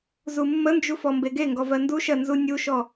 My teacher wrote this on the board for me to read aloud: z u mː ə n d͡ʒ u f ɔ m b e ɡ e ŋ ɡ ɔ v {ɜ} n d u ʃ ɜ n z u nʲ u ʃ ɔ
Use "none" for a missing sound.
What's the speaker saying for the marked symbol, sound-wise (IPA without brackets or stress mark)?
ɜ